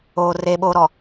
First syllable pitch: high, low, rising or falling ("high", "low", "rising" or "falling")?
low